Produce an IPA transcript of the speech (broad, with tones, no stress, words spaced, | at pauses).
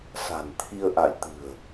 sa̤˨˩nt̪ʰi˧ə̯ʔa̰˧˨j t̪ɨ̤˨˩ə̯